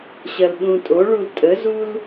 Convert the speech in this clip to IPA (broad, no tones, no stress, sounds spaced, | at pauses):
ɕ ɐ l ɗ ũ tʼ o ɭ u l tʼ ə z u l